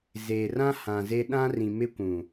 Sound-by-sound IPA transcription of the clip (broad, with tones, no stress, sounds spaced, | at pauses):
z eː˨ r ã˦ h ã˨ z e˦ ɗ ã˦ r ĩ˨ m ɪ˦ kʷ ũ˨